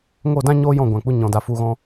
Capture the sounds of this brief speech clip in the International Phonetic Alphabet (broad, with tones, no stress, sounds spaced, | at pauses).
ŋ o˦˨ d ã˦ ɲ oː˦ j ɔ̃˦˨ ɡʷ ã˨ k͡p u˧ ɲ ɔ̃˧ d a˧ f u˧ ɣ ɔ̃˦